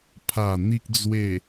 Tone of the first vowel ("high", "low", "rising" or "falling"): low